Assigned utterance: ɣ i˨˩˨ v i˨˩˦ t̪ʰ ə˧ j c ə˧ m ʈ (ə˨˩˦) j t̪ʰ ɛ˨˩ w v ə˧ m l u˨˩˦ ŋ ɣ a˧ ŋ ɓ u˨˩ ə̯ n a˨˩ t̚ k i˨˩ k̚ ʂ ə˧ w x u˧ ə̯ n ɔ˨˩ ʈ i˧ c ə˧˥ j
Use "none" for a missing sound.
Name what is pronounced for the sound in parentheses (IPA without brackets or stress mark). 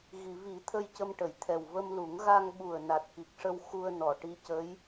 ə˨˩˨